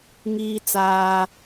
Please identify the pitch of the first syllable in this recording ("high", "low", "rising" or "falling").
high